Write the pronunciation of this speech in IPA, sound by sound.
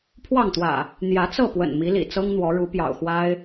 pʰ w ɑ˥˨ ŋ t̪ w ä̰˨˩ | n̪ j ä˨˦ t͡s ɤ˥˨ p w ə̰˨˩ n m i˨˦ l ḭ˨˩ t͡s ɤ˦ ŋ n̪ w ɔ˨˦ ɻ u˨˦ p j ɑ̰˨˩ ʊ̯ x w a˦ ɪ̯

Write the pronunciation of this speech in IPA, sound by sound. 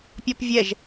pʲ ɔ p vʲ ɛ ʒ

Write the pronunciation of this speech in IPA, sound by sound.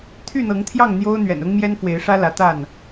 t̪ʰ y˥˨ n̪ ɤ˨˦ ŋ t̪ʰ j ɑ˥˨ ŋ n̪ j o˦ ʊ̯ n̪ ɥ ɛ̰˨˩ n ʊ˦ ŋ m j ɛ˦ n f w e˨˦ ɪ̯ ʂ ä˦ l ä˨˦ t̪ a˥˨ n

